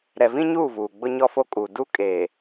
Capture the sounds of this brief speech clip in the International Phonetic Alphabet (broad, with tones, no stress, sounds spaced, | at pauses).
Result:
ɾ ɛ˨ v ĩ˦ ɲ uː˦˨ v uː˨ ɡ͡b ʊ˦ ɲ ɔ˦ f o˦ kʼ uː˨ d u˦ kʼ eː˨